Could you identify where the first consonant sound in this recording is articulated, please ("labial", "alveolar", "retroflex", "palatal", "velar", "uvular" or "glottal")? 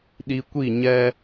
alveolar